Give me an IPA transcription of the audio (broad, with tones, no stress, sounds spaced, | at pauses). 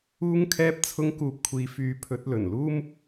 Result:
uː˧ ŋ kʰ ɛː˧ p̚ t͡sʰ ʊ˧ ŋ k uː˨ p̚ kʷʰ iː˨ f yː˨˥ pʰ ɵ˨˥ t̚ l ɵ˨˩ n l uː˥ m